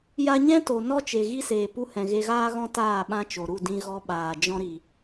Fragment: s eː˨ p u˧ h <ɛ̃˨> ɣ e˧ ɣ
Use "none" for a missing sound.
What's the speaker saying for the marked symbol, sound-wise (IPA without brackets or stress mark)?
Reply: ɛ̃˨